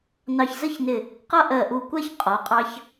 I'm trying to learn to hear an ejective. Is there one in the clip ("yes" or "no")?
yes